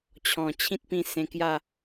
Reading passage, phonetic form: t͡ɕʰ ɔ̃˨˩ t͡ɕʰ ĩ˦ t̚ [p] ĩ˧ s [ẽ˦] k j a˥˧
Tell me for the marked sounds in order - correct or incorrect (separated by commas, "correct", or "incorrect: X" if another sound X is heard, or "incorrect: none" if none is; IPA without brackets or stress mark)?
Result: correct, incorrect: ẽ˧